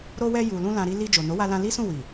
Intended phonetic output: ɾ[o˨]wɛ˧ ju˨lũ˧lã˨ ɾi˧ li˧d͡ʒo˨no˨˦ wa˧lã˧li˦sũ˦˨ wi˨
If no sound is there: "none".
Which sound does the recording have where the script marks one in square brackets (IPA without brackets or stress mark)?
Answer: o˧